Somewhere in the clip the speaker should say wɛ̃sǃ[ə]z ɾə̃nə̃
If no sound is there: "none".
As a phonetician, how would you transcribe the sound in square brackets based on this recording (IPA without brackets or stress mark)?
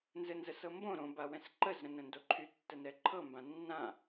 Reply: ə